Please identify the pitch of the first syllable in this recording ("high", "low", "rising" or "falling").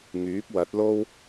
rising